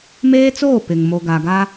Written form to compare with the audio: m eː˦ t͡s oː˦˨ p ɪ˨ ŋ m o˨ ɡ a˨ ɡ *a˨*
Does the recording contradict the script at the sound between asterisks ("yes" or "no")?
yes